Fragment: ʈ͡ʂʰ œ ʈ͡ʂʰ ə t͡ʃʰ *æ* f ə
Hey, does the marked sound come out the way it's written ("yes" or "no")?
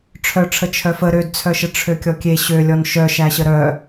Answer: no